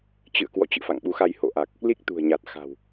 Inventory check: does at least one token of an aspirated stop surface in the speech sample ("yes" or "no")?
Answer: no